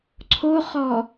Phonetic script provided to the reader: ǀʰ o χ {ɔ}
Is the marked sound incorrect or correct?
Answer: correct